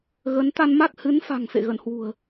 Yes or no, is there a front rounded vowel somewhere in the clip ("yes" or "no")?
no